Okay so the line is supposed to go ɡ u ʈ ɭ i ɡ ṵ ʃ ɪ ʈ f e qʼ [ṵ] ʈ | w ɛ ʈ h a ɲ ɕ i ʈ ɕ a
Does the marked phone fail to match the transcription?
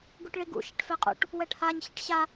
no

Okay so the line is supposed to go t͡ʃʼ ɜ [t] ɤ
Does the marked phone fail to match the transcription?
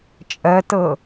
no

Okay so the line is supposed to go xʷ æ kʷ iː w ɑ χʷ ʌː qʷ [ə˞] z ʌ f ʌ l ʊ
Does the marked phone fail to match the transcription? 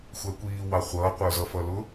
no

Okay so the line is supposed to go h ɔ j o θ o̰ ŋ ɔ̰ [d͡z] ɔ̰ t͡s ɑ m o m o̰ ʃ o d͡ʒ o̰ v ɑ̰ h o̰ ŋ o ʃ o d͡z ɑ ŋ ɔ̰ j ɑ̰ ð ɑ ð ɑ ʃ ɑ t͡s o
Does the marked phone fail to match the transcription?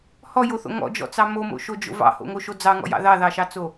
yes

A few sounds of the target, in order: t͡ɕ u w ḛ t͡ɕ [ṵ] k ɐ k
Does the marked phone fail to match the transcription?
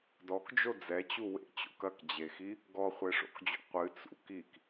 yes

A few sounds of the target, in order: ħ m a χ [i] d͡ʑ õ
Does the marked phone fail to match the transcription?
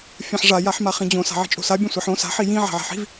yes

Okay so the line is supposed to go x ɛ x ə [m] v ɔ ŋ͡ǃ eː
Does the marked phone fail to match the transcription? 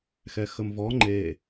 no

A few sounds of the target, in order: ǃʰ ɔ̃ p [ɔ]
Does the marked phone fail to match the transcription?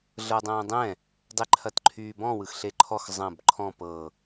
yes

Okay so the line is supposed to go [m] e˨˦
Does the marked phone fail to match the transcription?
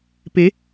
yes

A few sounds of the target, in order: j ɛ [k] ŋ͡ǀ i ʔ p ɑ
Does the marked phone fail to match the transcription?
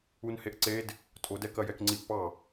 no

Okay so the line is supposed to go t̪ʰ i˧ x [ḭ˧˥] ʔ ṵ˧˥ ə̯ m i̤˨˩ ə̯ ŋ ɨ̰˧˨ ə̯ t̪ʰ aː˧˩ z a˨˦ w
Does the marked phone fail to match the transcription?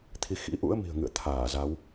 no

